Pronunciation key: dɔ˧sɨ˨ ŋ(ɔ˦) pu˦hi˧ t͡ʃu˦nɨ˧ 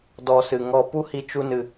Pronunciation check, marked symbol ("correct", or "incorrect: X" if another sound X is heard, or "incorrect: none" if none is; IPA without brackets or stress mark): correct